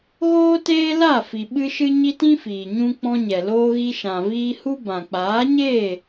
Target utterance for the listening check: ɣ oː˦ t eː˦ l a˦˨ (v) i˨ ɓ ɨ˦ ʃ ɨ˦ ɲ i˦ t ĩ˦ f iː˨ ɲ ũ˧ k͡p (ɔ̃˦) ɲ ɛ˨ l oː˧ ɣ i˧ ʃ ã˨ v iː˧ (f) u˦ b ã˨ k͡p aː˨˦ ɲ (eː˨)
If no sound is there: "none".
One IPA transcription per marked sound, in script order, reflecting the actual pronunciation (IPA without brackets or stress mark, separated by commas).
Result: f, ɔ̃˧, h, eː˦˨